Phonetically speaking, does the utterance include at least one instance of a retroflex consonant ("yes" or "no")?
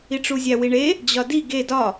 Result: yes